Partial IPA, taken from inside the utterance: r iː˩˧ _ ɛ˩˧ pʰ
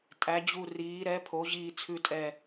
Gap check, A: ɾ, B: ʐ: A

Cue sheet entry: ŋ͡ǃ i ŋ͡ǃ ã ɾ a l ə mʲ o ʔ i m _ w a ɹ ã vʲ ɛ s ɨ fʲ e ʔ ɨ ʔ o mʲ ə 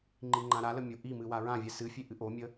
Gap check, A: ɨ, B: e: A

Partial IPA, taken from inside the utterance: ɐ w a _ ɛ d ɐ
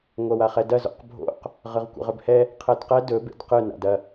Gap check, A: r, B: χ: B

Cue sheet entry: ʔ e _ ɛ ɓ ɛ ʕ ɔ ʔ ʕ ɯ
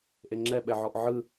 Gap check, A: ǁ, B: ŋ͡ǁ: B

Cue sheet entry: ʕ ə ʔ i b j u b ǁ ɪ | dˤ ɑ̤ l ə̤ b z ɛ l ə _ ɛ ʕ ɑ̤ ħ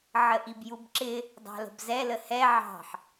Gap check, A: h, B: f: A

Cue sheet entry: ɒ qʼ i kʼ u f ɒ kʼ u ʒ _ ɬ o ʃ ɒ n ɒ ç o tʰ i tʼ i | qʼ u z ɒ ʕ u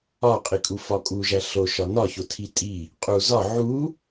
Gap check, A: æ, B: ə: A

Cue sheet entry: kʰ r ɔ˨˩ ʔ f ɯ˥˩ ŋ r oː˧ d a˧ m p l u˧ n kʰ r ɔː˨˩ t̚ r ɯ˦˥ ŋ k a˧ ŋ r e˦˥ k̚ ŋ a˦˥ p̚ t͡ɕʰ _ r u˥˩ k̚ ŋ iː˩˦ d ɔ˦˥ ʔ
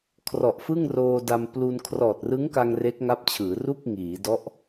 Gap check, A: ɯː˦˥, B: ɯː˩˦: B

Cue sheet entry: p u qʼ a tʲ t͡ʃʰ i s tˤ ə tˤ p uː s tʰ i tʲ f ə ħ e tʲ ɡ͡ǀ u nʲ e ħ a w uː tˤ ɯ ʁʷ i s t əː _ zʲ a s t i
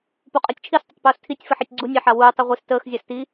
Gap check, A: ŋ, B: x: B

